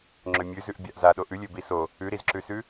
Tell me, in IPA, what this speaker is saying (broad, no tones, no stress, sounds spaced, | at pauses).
ŋ͡ǁ ø mʲ ʉ z ʉ ʔ bʲ a ʔ z a ɗ o ʔ ʉ lʲ ø b i s o | ʉ ɾ i z ǁ ʉ s ʉ